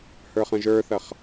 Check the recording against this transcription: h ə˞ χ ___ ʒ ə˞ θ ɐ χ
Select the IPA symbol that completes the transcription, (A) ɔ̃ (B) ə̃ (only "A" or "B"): B